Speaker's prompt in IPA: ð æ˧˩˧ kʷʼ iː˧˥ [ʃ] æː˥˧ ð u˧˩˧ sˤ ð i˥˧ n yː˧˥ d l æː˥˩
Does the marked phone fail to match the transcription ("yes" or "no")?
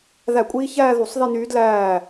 yes